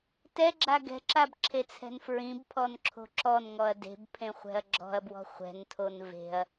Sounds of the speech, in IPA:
tɛɡ͡ǁa ɡɛ̤ǁabǁʰet͡sʰɛ̤n fɹĩbpʰɔnǁʰo̤ ǁɔnŋɔɐ̯ de̤bpʰẽχʷɛ̤ɐ̯ ɡ͡ǁɔ̤ɐ̯bwɔ̤ χʷɛ̤ntʰon ve̤ɐ̯

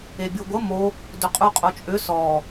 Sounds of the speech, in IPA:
ebʲoɡʷə mo | dʏqʼuqʼot͡ʃʼʏ sɔ

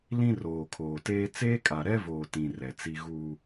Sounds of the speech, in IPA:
lĩ˦roː˨kʰoː˨teː˦ t͡seː˦kʼa˨ ɾɛ˦voː˨ tĩ˨ rɛ˨t͡si˦ ɣuː˦

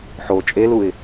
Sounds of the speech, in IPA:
ħo t͡ʃʼeluɪ̯

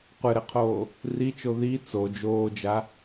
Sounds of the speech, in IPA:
qʷɘɾɘqʰoː | rit͡ʃo ði t͡so d͡ʒoːd͡ʒa

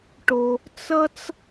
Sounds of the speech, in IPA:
ʈo˨ | t͡sʌ˥t͡s

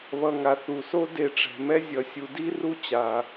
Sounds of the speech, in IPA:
βʌ˨ŋa˩ θu˩so˦ de˨ʈ͡ʂɛ̤˩mɛ˦ zʲʌ˨sʲu˨ di˥ ru˦ t͡ɕa˩

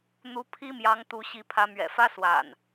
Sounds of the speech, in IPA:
n̪u˨˦ pʰi˦mjɑ˨˦ŋ t̪u˨˦ɕi˨˦pʰä˨˦ mɥɛ̰˨˩fä˦swa̰˨˩n

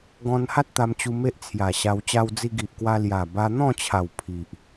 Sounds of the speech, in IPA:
ɡɔ̃˧nha˦t̚ t̪a˧mt͡ɕu˧ me˦ʔt͡sʰja˨˩ɕa˧w t͡ɕa˧wd͡zi˧ɡi˨ʔkwa˧ lja˨˩ ba˧n̪ɔ̃˥˧t͡ɕʰa˨˩w pʰi˨ʔ

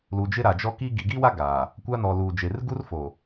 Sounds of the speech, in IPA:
lu˨d͡ʒɪ˦ɾa˨d͡ʒɔ˦ ki˦ɡi˨ ɡi˦wa˦ ɡaː˨ | kʷa˦nɔ˨luː˨d͡ʒe˨r ɡu˦rfo˨

